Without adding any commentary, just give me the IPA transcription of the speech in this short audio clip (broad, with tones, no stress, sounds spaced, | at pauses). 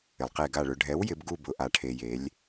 ɪ˩ lˠ q e˧˩ ɡ a˧˩ ɭ ʊ˩˧ ɖʱ ɛ˩˥ w j ɪ˩˧ b ɡ u˧˩ b ʊ˩ ʔ a˩ ʈʰ e˩ j e˩˧ lʲ